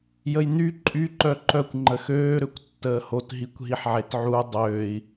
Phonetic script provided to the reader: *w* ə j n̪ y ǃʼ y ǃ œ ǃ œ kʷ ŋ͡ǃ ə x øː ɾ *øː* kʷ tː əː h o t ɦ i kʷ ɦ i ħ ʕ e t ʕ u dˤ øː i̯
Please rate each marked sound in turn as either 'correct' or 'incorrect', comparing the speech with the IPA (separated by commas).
incorrect, incorrect